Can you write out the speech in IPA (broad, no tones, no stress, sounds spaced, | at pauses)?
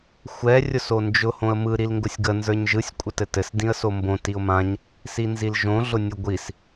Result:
xʷ ɛ rʲ ʊ s o n d͡ʒ ʊ h õ ə̯ m ɯ ɾ i l ŋ ɡ ʊ sʲ ɡ ə n z ə˞ ɲ ʒ ɯ sʲ kʷʼ ə t ɘ t ɘ s d ĩ ə̯ s o m b õ t i ʊ̯ m ã ɲ | s i n z i l ʒ õ ɮ ʊ nʲ ʊ ɡʷ i s